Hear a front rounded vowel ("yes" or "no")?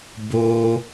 no